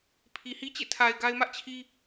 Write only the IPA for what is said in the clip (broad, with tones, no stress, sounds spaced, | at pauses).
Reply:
pʰ i˨ h i˦ t͡ɕ ḛ˦˨ tʰ a˨ ɪ̯ ɡ a˦ ɪ̯ m ä˦ ʔ t͡ɕʰ i˦